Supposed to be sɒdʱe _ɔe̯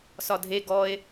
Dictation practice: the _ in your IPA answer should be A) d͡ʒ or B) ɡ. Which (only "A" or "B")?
B